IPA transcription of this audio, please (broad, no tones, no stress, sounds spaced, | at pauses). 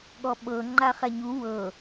ɠ ɔ ɓ ɤ ŋ͡ǃ a χ ɛ ɲ u w ɤ